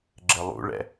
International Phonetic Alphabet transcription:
ɡ͡ǁ ɘ lˠ ṵ ɭ ɛ̰

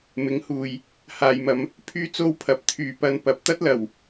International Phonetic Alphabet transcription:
m ɪ˨˥ ŋ h uː˨ j | h aː˨ j m ɐ˨˧ m | pʰ yː˥ t͡s o˥ w pʰ ɐ˨˥ p̚ t̪ʰ yː˨˧ p ɐ˧ n p ɐ˨˥ p̚ t̪ ɐ˥ t̚ l ɐ˨˩ w

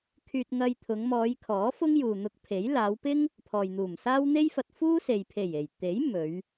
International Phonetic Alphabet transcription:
kʰ yː˧ t̚ ŋ ɐ˧ j t̪ʰ ʊ˨˧ ŋ m ɔː˨˧ j kʰ ɔː˨˥ f ʊ˥ ŋ j uː˨ n̪ ʊ˧ k̚ pʰ e˨˥ j l aː˨˧ w p ɪ˥ ŋ | pʰ ɔː˨ j n̪ uː˨˩ m s aː˥ w n̪ e˥ j f ɐ˧ t̚ f uː˥ s e˨ j pʰ e˨˩ j e˨˩ j t̪ e˨˥ j m ɵ˨˧ ɥ

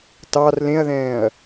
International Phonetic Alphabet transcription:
t ɑ r l ẽ ɐ̯ ð ɛ̃ː ɐ̯

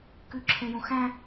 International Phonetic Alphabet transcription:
k ʉ ǁʰ ẽ j ũ x æ̃

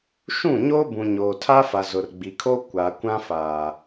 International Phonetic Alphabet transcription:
ʃ ũ˦˨ ɲ oː˦ b ũ˨ ɲ oː˨ tʰ a˦ f a˨ z ʊ˨ r ɡ͡b i˨ kʰ o˦ kʷ a˨ kʷ ã˦ f aː˨

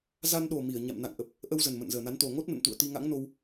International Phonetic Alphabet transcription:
z a˧ n ɗ o˨˩ m i˧˩ ə̯ ɲ a̰˧˨ m n a̰˧˨ ŋ ʔ ə˨˩ p̚ | ʔ ə˧ w z ə˨˩ n m ə̰˧˨ n z əː˨˩ n a˨˦ n t̪ o˨˩ ŋ o˦˥ t̚ n ə̰˧˨ n t̪ ṵ˧˨ ə̯ t̪ i˧ ŋ a̰˧˥ ŋ n o˧ w

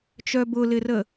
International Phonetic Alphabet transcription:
t͡ʃ œ b ʊ l ɪ r ə

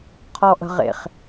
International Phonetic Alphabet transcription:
qʰ ɔ ʔ ə̤ ʁ ḛ χ

